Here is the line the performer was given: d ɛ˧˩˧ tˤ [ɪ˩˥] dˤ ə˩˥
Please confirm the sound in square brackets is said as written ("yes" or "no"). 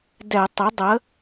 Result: yes